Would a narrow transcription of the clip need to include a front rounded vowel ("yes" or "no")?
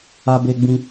no